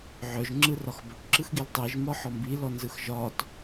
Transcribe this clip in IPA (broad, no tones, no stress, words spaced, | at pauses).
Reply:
ʕœʒ ŋ͡ǁɯrɒxbɵʈ ǁɯxɡiltˤiʒ mɒħɔmbi lɔnzɯxʒɒt